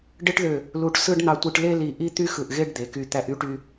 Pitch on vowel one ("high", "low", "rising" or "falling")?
high